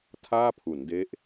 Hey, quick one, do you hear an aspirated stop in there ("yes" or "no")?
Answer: yes